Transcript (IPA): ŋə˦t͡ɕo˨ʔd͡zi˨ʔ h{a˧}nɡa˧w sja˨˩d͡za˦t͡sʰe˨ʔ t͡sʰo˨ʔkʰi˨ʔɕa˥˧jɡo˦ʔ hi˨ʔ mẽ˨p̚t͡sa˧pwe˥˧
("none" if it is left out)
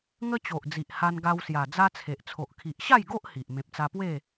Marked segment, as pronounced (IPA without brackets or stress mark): a˧